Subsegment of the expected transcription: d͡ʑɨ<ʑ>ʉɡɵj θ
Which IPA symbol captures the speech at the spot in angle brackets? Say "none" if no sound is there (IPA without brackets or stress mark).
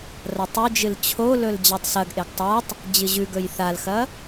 ʑ